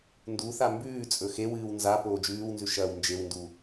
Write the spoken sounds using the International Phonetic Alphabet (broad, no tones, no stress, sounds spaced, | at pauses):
n d u θ a m b ʉː t͡sʼ ɵ x e w ɨː w n z a p oː d͡ʒ ʉː w n z ʉ ʃ ɐː w n d͡ʒ e w n d u